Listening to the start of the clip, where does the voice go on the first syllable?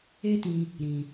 high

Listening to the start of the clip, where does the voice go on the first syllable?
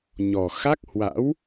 low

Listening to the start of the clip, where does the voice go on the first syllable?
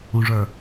low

